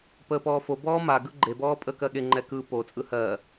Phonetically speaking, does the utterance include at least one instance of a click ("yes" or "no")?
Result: yes